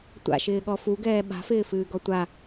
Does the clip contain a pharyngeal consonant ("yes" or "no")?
no